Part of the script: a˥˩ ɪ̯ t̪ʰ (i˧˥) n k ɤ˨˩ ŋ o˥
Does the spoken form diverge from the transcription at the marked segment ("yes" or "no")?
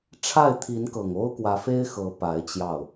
no